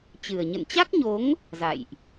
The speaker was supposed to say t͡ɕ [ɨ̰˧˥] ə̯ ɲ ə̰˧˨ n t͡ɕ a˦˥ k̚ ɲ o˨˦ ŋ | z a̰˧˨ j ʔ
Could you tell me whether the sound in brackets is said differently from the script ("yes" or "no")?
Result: yes